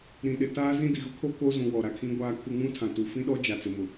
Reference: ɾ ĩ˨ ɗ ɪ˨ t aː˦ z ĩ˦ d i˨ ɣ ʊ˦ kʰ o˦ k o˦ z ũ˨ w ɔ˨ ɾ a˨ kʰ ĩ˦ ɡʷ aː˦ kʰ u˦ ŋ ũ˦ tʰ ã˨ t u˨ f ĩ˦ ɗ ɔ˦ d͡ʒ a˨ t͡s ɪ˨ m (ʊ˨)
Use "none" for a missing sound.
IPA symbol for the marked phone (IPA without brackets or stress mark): ʊ˨